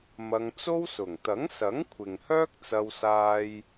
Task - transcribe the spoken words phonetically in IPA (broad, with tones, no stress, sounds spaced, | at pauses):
m ɐ˧ ŋ t͡s o˥ w s ʊ˨˩ ŋ t̪ ɐ˨˥ ŋ s ɐ˨˥ ŋ kʷʰ ɪ˨ ŋ h œː˥ k̚ t͡s ɐ˧ w s aː˥ j